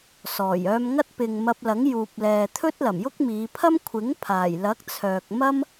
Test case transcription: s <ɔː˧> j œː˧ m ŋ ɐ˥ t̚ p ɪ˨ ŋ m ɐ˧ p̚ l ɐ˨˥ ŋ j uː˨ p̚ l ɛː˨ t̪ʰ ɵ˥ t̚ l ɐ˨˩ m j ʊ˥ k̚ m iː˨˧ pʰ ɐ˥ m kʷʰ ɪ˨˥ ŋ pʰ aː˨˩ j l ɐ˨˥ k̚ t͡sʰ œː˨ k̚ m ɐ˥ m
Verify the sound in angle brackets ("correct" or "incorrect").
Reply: incorrect